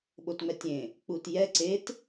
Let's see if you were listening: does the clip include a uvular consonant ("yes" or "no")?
no